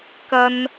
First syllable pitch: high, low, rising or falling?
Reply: high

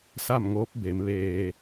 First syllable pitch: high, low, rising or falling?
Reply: falling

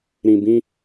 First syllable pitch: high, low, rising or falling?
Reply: low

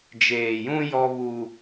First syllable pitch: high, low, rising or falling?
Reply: low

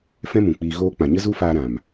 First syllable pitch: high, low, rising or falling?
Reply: high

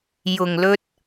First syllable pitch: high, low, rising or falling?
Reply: low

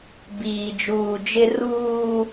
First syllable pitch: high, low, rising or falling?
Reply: low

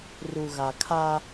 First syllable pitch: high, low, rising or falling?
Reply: low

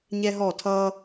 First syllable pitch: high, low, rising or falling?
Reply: high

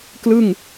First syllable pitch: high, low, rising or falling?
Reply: falling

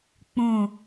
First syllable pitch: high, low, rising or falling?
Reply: low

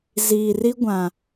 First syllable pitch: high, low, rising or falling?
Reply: low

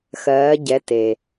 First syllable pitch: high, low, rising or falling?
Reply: rising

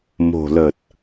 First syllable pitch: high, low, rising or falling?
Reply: low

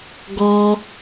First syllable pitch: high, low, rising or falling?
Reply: high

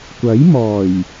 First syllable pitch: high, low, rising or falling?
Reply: rising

